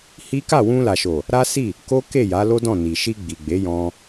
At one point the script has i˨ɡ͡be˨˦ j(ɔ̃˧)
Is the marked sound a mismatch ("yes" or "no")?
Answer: no